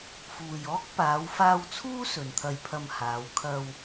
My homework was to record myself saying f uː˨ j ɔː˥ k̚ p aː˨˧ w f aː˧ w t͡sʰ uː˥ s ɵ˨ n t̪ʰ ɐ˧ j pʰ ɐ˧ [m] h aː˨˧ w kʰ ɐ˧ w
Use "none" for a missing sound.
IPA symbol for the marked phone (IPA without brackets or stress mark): m